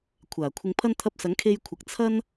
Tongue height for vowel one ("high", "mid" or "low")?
low